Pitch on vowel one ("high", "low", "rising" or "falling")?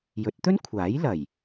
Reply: rising